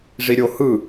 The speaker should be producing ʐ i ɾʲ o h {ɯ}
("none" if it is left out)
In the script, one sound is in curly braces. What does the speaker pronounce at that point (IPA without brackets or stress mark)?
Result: ɯ